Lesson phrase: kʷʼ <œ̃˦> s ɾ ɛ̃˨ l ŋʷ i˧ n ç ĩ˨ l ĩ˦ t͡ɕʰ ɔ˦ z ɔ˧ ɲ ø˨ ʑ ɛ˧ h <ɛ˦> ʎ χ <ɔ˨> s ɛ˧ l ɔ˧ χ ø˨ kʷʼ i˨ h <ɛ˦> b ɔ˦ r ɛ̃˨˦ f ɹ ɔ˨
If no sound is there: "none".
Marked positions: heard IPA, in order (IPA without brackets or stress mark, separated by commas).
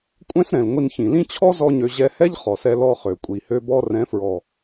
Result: ɛ̃˦, ɛ˦, ɔ˨, ø˦